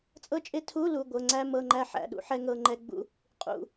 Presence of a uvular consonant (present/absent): present